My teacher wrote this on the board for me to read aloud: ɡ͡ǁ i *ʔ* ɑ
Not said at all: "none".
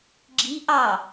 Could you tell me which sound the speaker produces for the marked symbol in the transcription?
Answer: ʔ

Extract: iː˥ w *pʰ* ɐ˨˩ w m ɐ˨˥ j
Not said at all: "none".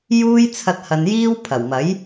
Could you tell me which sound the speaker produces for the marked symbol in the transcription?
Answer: pʰ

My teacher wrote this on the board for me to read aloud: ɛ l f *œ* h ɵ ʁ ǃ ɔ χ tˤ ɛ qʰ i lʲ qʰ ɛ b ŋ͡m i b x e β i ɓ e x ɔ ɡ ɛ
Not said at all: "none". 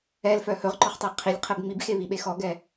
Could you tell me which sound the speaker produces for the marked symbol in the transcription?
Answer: œ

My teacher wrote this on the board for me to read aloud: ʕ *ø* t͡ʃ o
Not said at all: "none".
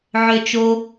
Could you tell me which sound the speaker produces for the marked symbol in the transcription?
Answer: ø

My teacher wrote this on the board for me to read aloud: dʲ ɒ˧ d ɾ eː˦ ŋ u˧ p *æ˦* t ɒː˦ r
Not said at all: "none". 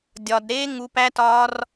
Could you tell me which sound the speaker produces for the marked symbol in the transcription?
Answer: æ˦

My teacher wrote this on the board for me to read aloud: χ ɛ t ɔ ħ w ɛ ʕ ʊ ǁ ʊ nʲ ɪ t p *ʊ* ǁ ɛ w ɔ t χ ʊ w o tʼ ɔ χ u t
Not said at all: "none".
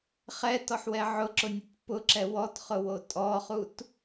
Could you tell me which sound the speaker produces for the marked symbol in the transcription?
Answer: ʊ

